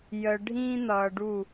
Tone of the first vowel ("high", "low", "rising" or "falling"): low